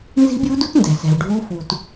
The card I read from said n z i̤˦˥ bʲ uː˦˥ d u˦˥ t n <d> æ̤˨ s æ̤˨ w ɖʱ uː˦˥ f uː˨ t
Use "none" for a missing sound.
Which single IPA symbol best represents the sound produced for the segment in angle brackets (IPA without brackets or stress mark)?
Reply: d